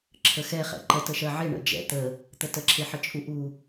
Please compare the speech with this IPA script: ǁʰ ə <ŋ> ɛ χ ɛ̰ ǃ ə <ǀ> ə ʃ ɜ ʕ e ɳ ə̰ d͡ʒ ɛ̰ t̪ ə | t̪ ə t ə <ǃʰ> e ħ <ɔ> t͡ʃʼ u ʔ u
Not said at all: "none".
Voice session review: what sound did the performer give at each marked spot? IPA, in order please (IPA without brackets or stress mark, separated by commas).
x, t, ǁʰ, ə